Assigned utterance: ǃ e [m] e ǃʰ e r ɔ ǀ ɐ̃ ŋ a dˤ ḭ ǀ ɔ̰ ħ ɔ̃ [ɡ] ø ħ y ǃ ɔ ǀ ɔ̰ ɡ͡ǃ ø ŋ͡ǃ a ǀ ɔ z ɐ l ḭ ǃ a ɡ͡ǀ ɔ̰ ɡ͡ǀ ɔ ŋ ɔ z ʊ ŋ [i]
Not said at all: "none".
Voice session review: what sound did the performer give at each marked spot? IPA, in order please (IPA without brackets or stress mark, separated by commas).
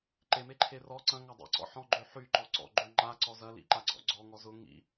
m, ɡ͡ǃ, ḭ